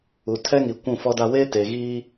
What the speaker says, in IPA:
u˨ tʰ ɛ˦ ŋ i˨ kʷ ũ˦˨ f ɔ˦ d a˦ w eː˦ t e˨ ɣ iː˦

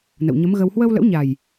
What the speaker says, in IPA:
n ə̰˧˨ w ɲ ə˨˦ m ɣ ə˧ w h w ə˧ w l ə̰˧˥ w ɲ a˨˩ j

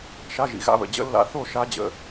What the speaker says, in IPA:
ʃ a˧˥˧ ʒ ḭ˩˧˩ ɣ a̰˧˥˧ β ə̰˩˧˩ d͡ʑ ə̰˧˥ lː a̰˧˥ θ o˥˨ ʃ a˧˥ d͡ʑ ə̰˩˧˩

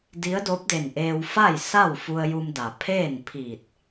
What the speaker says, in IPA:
d i˧˥ ə̯ d o˧˥ p̚ d e˧˩ n ʔ eː˧ w f a˥˨ j s a˥˨ w f u˧ ə̯ j u˧ m d a˩ pʰ eː˥˨ n pʰ iː˧˩ t̚

